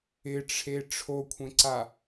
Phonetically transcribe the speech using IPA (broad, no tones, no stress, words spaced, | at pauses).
ɪʈ͡ʂʰe ʈ͡ʂʰokʷʰẽǀa